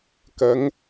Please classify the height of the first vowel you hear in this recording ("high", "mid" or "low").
low